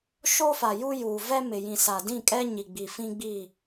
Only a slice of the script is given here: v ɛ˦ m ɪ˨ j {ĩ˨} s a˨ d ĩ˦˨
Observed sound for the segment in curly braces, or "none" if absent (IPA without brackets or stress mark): ĩ˨